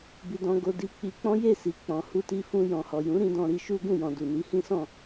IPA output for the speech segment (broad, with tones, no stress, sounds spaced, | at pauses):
b i˧ d ɔ̃˧ ɡ o˧ d i˧ k͡p i˧ k͡p ɔ̃˦ j e˦˨ s i˨ k͡p ɔ̃˨ h u˧ t i˧ f ũ˧ j ɔ̃˨ h ɔ˨ j ũ˨˦ ɾ ĩ˧ d ɔ̃˧ ɾ i˧ ʃ u˦ ɡ ũ˦˨ j ɔ̃˨ d u˨ n i˨˦ h ĩ˦ s ɔ̃˦˨